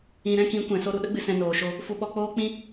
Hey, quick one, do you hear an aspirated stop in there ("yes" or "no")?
no